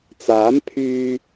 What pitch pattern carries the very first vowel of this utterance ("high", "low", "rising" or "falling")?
rising